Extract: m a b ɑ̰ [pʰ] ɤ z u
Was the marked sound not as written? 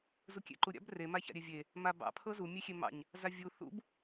no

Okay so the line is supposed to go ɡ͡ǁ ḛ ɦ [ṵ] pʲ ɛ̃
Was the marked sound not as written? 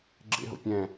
yes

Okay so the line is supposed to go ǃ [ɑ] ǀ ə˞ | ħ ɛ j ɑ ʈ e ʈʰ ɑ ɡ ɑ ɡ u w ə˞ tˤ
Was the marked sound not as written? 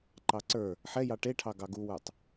no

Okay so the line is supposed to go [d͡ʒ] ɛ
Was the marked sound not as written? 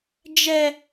no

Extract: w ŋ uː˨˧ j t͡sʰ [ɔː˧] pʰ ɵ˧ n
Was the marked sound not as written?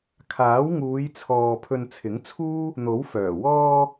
yes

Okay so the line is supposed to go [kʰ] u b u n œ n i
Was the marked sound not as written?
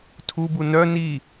yes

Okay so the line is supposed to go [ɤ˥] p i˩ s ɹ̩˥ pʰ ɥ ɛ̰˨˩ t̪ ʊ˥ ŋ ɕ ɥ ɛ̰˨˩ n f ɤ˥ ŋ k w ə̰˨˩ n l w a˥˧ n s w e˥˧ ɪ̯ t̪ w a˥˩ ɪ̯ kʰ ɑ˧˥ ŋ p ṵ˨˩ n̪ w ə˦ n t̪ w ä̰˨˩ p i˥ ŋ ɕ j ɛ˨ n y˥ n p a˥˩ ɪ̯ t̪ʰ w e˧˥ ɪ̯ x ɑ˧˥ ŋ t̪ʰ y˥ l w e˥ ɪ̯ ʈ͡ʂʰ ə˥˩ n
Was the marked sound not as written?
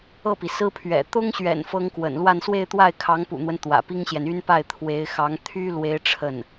yes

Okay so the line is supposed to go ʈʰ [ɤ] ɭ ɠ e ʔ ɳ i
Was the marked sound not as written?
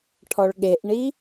yes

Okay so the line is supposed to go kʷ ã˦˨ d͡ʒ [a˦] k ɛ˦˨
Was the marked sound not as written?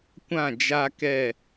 no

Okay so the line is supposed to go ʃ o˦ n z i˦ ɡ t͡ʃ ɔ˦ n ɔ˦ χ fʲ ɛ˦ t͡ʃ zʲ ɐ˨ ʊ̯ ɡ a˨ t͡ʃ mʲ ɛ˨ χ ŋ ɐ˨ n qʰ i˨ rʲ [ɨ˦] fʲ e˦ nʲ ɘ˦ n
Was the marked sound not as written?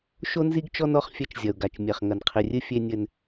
no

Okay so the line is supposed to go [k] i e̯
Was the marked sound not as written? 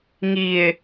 yes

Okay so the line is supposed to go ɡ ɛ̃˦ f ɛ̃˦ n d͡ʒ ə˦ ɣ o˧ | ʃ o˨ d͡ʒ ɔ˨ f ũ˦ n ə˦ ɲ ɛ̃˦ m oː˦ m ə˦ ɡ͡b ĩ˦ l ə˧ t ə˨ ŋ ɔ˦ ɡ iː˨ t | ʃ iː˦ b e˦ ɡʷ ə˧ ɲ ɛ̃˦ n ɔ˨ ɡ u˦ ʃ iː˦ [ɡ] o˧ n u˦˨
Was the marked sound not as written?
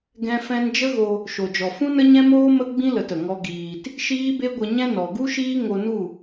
yes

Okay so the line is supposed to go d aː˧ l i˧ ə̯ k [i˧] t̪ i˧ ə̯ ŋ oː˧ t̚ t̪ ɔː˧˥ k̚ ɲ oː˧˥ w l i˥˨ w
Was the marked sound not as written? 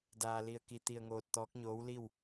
no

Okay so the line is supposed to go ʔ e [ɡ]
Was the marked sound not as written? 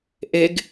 no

